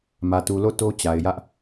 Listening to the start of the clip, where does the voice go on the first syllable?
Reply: low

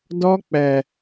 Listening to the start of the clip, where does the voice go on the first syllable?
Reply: high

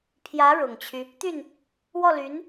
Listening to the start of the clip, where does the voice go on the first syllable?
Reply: rising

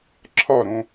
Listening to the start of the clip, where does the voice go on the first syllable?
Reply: falling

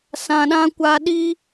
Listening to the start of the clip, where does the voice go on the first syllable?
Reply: low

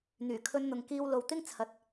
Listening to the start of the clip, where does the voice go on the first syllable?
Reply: low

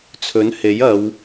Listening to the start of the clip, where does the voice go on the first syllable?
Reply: rising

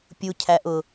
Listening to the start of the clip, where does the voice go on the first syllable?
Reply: low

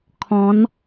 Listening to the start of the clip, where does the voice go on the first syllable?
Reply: rising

